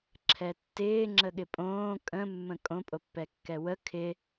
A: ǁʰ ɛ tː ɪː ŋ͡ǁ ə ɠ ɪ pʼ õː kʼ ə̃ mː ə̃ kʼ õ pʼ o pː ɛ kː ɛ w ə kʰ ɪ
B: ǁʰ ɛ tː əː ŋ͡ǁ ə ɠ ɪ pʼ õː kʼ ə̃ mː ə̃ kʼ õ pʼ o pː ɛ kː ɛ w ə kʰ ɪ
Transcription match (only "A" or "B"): A